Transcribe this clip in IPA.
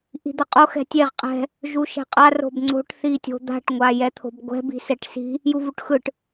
ʔ i̤ d̪ ʌ qʼ o x ɛ̤ tʲ e ʁ qʼ ɛ̤ | ʒ u ʃ ɛ̤ qʼ a r o̤ b ŋ͡ǀ o̤ ʈ θ i tʲ o̤ d̪ a̤ ʈ ŋʷ a j ɛ t̪ʰ o̤ b ɡʷ ɛ̤ b i̤ s ɛ ʈ s i̤ | j u v u ʈ x ɯ ʈ

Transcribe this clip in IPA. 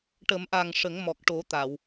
ʈ ə˨˩˦ m ʔ a˨˩ ŋ ʂ ə˨˩˦ ŋ m ɔ˨˩ k̚ ʈ o˨˩˦ t̪ a˨˩˨ w

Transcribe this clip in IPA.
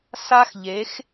s a˦ x ʎ e˨˦ x

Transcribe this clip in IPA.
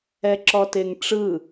ɛ ǁ ɔ t e ŋ ʈ͡ʂ ɯ

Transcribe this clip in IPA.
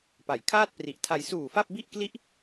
p a˩˦ j kʰ aː˥˩ t̚ p r i˨˩ ʔ tʰ a˧ j s uː˨˩ f a˥˩ p̚ b i˥˩ ʔ k l i˦˥ ʔ

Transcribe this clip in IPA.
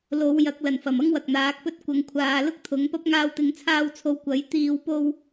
l o˨˧ w j ɐ˨˥ k̚ l ɐ˨˩ n f ɐ˨˩ m ɐ˥ ŋ w ɐ˨ k̚ n̪ aː˨˥ k̚ p ɵ˥ t̚ kʷ ɐ˨˧ ŋ kʷʰ aː˨˧ l ʊ˥ k̚ t̪ʰ ʊ˨˥ ŋ p ɐ˥ p̚ ŋ aː˧ w t̪ ɪ˨˧ ŋ t͡sʰ aː˧ w t͡sʰ o˨˧ w kʷ ɐ˨˥ j t̪ iː˧ w p o˧ w

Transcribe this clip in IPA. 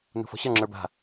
n ṳ f ɔ̤ ɕ ʌ ŋ͡ǁ ə˞ b a̤

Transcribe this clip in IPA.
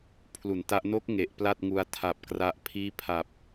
pʰ l u˩˦ n t a˦˥ ʔ n o˦˥ k̚ ŋ e˨˩ ʔ p l a˥˩ t̚ ŋ u˧ a̯ tʰ a˨˩ p̚ k r a˦˥ ʔ pʰ iː˥˩ pʰ a˨˩ p̚

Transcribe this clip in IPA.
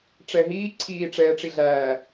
ʈ͡ʂ ɛ ɦ iː ǀʰ iː ʈ͡ʂ ɛː ʈ͡ʂ i ɮ æː

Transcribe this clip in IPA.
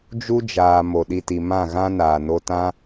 d͡ʒ u˦ d͡ʒ aː˨ m o˨ ɗ i˧ t i˨ m ã˦˨ ɣ ã˦ n aː˨ n o˧ t ã˦

